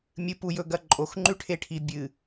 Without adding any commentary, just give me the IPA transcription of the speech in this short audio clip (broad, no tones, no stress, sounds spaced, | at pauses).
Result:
mʲ ɨ p u j ɵ ɡ ɐ ǃʼ o x ŋ͡ǃ ʉ ʈʰ e ʈʰ i bʲ ɨ